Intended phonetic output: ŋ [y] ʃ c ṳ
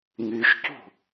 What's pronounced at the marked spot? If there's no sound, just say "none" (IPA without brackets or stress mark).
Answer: y